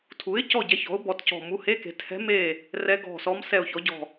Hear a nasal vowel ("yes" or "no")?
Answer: no